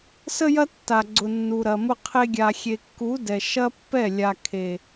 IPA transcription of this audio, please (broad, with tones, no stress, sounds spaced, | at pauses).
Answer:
s ə˦ j ɐ˦ tː a˨ ɡ͡ǀ ʊ˨ nː u˨ ɾ ɐ˨ m ʊ˦ qʰ e˦ ɡʲ a˨ xʲ e˨ kː u˨˦ d ɛ˨ ʃ ɐ˦ pː ɛ˦˨ lʲ a˨ kʰ e˨